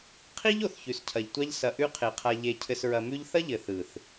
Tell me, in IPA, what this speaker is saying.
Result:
qʰ i˦ ʎ o˨ θ ç ʉ˨ s cʰ ɐ˨ ʎ tʷ a˦ ʎ s ɐ˨ ʔ ʉ˧ qʰ e˨ qʰ a˧ ʎ e˧ cʰ ɘ˧ s ɹ ɐ˧ m ʉ˦ ʎ θ ɐ˦ ʎ ɘ˨ θ ɯ˨ θ

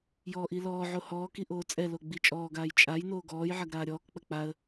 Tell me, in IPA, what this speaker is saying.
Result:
j ɔː ʔ i l ɔː ʕ o h ɔː k i ʔ oː t͡sʼ ɛ l o ɡ͡b i t͡ʃʼ ɔː ɡ aː j t͡ʃʼ a j n oː ɡ ɔː j ʕ ɐ ɡ ɾ aː ɾʲ ɔː k k͡p ɐ k͡p a ə̯

